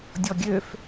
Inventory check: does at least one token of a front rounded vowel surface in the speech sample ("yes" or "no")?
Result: yes